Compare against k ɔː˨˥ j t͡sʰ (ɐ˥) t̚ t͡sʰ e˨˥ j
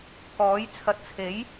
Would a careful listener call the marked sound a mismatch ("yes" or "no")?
yes